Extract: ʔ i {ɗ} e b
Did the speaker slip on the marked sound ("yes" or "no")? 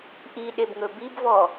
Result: no